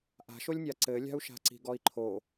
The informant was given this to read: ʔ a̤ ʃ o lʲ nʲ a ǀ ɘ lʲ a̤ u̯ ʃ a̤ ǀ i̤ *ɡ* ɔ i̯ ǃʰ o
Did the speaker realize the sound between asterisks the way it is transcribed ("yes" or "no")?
yes